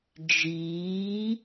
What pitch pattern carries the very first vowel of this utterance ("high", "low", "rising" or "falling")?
rising